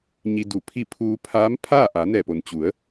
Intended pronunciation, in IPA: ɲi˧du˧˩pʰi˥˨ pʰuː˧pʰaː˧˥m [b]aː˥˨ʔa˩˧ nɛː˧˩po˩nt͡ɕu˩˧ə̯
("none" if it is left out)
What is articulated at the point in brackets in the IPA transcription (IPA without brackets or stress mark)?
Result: pʰ